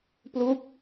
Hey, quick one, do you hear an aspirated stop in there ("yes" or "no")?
no